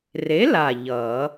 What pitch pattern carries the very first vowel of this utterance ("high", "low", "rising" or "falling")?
rising